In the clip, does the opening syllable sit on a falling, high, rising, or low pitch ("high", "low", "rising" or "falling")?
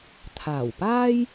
low